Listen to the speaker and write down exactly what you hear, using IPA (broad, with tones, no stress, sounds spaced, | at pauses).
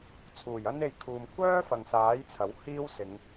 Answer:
t͡sʰ uː˨˩ j ɐ˥ n e˧ j kʰ uː˨ m kʷʰ œː˥ f ɐ˨ ŋ s aː˨˥ j t͡sʰ ɐ˨˥ w h iː˥ w s ɪ˨˧ ŋ